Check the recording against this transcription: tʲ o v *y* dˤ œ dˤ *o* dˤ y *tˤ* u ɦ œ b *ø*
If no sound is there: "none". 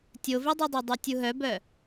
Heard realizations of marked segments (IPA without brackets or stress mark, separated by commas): i, o, tʲ, œ